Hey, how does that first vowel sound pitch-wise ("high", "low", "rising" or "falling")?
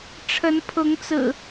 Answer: rising